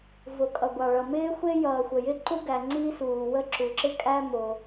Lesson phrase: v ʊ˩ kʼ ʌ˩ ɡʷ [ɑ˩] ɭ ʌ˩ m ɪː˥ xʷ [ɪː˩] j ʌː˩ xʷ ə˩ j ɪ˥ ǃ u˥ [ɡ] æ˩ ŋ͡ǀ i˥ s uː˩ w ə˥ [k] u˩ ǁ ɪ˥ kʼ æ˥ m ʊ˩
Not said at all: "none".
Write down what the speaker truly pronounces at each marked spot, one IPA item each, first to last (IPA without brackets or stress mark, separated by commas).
ɑ˩, ɪː˥, ɡ, ǁ